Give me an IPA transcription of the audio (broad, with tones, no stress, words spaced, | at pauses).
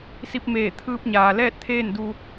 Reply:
si˧p̚ meː˧˩ t̪ʰɯː˧p̚ɲaː˩ lɛː˥˨t̚t̪ʰeː˥˨n du˧